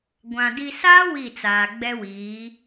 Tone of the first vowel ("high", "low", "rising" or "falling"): low